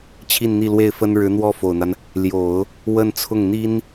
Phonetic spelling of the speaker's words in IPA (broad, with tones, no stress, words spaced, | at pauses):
t͡ɕʰi˥˧nn̪i˥˧lwe˥˩ɪ̯fə˥n ɻɻ̩˧˥n̪wɔ˥˩ fo˨˩ʊ̯n̪a˦n | ljo˨˩˦ʊ̯ | wə˥˧nt͡sʰʊ˥˩ŋ n̪i˥n